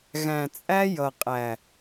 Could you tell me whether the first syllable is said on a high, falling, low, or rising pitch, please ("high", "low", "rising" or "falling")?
low